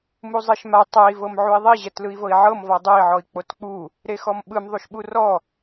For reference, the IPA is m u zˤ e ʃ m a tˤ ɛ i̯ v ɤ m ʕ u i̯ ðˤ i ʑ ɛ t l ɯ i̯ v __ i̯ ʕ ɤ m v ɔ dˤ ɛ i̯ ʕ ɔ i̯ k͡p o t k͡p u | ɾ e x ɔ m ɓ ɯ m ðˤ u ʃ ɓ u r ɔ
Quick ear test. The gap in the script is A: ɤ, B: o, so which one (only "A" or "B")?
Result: A